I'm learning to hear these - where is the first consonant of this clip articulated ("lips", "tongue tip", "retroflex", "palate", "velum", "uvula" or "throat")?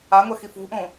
velum